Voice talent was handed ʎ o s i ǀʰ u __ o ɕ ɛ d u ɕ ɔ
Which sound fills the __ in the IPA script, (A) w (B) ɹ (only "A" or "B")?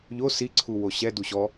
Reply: A